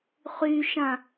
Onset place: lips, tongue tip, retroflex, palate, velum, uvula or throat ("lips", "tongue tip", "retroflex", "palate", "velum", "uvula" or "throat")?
uvula